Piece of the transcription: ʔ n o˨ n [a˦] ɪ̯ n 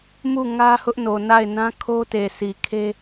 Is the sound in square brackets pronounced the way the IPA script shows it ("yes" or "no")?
no